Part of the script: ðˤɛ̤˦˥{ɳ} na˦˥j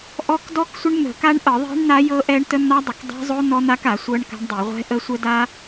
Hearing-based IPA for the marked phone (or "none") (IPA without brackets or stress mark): ɳ